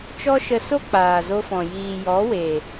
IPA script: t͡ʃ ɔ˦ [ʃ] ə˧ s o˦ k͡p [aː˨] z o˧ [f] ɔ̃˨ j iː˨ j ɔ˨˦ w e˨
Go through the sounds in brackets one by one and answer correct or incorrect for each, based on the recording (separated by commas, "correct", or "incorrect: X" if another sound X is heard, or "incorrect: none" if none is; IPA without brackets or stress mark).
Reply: correct, correct, correct